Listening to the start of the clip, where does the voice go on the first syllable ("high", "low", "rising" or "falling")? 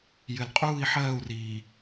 low